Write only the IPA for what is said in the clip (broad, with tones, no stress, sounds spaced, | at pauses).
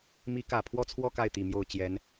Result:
m i˧˥ k ä˨˩ pʰ w ɔ˥˧ t͡sʰ w ɔ˥˧ k a˥˩ ɪ̯ t̪ i˨˩ m j o˥˩ ʊ̯ t͡ɕ j ɛ˧˥ n